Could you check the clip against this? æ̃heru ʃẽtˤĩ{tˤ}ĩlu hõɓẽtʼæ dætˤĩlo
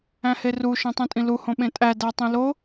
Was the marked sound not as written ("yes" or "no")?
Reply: yes